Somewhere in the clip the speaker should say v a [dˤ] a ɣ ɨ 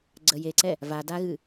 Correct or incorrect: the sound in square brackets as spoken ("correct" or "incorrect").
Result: incorrect